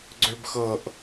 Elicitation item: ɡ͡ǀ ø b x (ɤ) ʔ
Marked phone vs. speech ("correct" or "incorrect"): correct